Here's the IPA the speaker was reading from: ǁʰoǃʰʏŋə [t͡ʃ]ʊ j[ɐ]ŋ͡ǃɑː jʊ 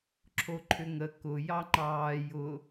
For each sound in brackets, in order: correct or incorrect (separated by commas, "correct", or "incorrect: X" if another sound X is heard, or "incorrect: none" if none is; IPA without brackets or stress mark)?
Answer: incorrect: k, incorrect: ɑ